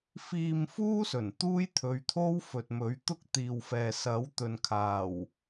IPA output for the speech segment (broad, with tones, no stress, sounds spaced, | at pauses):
f iː˧ m f uː˥ s ɵ˨˩ n t̪ uː˥ j t̪ʰ ɵ˨˧ ɥ t̪ʰ o˥ w f ɵ˨ t̚ m ɵ˨˥ ɥ t̪ ʊ˥ k̚ t̪ iː˨ w f ɛː˨ s ɐ˨˥ w t̪ ɵ˨ n kʰ aː˨˩ w